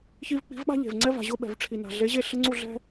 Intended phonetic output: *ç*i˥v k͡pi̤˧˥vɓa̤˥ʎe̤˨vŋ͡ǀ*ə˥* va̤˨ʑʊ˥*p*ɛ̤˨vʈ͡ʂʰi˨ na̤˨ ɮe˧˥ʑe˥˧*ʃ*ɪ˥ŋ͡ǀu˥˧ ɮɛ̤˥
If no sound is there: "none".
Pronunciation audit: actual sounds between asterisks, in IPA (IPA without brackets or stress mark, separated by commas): ç, ɛ˥, ɓ, ɬ